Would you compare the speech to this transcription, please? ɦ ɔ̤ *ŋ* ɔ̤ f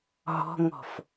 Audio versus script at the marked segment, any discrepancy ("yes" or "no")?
no